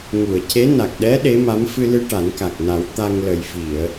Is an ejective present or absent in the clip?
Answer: absent